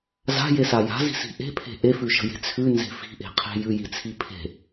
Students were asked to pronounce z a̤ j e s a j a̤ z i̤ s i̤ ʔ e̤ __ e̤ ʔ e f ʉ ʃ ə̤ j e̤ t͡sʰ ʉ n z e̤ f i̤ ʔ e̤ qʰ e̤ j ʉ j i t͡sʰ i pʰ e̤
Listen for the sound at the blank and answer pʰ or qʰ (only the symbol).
pʰ